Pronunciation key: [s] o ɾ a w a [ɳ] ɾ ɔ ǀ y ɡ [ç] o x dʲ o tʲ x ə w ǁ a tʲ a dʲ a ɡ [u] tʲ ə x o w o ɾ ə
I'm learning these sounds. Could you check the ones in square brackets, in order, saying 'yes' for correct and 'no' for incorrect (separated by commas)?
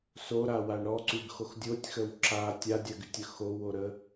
yes, yes, no, no